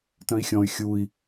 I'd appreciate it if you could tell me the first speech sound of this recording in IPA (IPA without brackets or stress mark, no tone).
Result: t